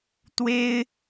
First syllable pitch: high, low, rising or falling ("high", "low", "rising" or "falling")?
high